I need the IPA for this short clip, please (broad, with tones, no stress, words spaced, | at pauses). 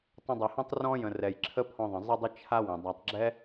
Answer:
tˤə̃˧dˤɛ˨hõ˦tˤ rɔ̃˦ jə̃˨ rɛ˨jǁʰə˦pʰɔ̃˧ðˤə̃˨ zˤɪ˦ dˤɪ˦ t͡ʃʰa˦ wə̃˨ dˤa˨tˤɡ͡ǁɛ˦